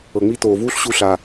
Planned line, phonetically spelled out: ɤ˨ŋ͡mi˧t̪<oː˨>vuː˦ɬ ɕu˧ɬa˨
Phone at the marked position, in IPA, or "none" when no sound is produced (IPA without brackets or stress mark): oː˨